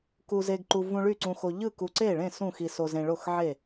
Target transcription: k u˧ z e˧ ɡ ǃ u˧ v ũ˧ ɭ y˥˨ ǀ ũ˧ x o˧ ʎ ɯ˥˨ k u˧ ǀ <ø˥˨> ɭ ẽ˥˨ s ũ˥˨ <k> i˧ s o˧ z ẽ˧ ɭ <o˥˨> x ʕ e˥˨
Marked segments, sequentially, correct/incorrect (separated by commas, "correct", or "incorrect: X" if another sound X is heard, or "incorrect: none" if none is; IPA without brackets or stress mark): incorrect: e˥˨, incorrect: x, correct